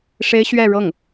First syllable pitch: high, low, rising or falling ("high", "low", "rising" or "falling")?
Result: high